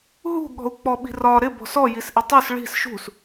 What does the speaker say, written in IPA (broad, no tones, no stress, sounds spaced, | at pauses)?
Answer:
ɦ ṳ ɠ ɔ̤ u̯ k͡p ɔ ɓ i̤ r ɒ ɾ ɪ b ɔ̤ s ɔ j i s ʔ ɪ tˤ u s ɭ i̤ s ʃ ṳ s